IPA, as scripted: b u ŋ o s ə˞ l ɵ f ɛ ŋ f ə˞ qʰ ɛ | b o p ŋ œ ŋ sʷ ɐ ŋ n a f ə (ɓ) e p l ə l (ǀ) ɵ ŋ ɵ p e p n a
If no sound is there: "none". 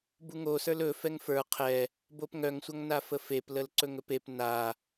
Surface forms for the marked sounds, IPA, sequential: f, ǀ

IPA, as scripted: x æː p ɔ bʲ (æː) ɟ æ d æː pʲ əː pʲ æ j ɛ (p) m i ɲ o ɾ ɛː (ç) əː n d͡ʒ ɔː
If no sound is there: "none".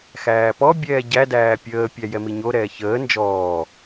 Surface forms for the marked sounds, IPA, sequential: ɛː, none, ç

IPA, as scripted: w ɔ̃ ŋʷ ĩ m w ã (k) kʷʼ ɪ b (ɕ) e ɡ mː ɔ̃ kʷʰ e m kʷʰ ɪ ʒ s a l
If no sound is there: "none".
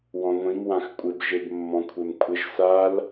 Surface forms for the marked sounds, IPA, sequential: x, ʒ

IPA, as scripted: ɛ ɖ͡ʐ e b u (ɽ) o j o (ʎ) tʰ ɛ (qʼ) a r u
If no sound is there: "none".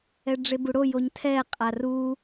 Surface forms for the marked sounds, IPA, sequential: ɽ, ɲ, qʼ

